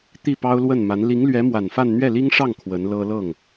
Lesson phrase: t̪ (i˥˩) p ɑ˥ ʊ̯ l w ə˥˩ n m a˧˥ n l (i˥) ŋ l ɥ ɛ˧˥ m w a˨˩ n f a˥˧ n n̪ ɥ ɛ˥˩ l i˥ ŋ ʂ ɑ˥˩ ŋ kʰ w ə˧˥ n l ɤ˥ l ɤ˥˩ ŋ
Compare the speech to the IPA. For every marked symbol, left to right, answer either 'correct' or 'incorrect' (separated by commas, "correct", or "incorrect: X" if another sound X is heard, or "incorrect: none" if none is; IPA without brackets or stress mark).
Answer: correct, incorrect: i˧˥